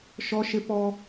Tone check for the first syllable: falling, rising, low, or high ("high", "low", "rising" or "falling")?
high